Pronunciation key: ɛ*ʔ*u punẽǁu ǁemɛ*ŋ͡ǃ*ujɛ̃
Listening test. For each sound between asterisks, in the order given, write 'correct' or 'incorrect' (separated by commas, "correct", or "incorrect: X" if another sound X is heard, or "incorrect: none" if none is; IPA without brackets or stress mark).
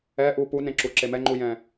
correct, correct